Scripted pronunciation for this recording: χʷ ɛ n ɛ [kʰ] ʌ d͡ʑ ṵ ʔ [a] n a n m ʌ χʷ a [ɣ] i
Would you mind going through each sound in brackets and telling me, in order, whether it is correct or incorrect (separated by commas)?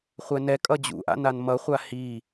incorrect, incorrect, incorrect